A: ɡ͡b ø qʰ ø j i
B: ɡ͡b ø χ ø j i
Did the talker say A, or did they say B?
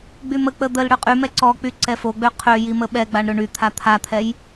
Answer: A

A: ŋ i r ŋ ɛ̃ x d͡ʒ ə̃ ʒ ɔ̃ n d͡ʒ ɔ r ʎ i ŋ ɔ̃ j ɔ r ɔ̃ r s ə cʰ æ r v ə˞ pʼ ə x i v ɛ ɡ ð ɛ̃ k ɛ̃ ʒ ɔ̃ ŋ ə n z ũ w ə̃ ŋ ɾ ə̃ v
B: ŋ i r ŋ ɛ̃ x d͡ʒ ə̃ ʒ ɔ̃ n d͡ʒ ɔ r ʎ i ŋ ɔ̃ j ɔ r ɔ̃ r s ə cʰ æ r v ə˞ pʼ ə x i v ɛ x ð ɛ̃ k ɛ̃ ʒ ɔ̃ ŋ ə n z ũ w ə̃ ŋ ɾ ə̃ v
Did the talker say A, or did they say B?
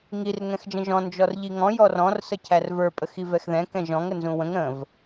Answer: B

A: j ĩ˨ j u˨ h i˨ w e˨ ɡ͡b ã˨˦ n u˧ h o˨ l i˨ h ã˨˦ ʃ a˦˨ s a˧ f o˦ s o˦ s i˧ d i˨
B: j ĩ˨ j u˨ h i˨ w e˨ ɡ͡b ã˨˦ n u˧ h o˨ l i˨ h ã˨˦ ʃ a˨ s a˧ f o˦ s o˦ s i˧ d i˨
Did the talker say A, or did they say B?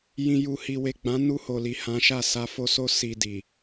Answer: A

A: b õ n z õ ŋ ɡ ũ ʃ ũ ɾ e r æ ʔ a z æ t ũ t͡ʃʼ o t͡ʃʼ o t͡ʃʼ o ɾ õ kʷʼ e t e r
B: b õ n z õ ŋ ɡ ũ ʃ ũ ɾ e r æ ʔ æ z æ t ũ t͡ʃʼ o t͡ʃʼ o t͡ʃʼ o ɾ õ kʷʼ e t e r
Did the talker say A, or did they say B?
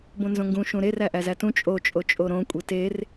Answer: B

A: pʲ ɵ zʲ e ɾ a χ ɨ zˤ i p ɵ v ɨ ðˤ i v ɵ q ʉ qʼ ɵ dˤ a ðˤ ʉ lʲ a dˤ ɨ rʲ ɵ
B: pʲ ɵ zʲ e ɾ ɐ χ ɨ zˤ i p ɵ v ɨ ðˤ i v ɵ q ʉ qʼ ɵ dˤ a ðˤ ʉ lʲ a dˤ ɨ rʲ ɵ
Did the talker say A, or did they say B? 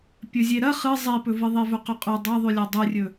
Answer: B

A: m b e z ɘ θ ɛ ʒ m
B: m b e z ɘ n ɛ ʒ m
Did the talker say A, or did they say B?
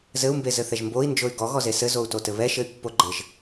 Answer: A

